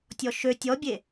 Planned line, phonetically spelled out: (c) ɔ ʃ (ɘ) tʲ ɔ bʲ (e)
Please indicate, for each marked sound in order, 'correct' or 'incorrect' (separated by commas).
incorrect, incorrect, correct